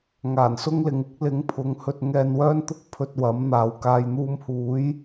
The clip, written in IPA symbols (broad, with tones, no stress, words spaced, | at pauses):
ŋaː˨˩nsʊ˥ŋlɪ˨˧ŋ ɪ˨˥k̚lɪ˨˥ŋpʰʊ˨˧ŋhɵ˧t̚ ŋɛː˧nwœː˥nt̪ʊ˥k̚ pʰɵ˧t̚wɐ˨˥mn̪aː˨w kaː˨jn̪uː˧mhuː˨˥j